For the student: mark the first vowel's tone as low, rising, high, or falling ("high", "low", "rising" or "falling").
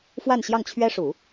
falling